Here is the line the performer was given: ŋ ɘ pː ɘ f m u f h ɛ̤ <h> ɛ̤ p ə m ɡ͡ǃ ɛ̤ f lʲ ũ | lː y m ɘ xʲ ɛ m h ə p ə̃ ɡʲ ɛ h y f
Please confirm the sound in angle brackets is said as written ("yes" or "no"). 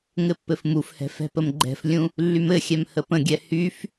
no